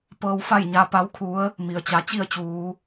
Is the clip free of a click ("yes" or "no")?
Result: yes